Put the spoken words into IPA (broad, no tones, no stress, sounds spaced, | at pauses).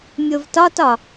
mʲ o v t ɒ t ɒ